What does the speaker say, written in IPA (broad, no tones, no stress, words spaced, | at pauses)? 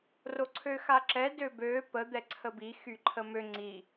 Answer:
roǀʰøxaǁɛ døbø pə d̪ɛǀʰəbi xyǃʰəmø ŋ͡ǀi